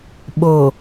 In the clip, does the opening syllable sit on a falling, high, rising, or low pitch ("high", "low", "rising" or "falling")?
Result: low